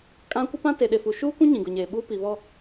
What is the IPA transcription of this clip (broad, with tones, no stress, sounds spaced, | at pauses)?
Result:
kʼ ã˦ kʷ ɪ˦ p ã˦ t e˨ ɗ e˨ f u˨ ʃ uː˦ kʷ ũ˦ ɲ ĩ˨ ɡ ʊ˨ ɲ eː˨ ɓ uː˦ p i˨ β ɔ˦